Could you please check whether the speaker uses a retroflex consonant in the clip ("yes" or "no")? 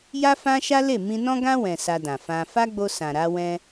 no